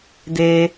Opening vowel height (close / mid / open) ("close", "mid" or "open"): mid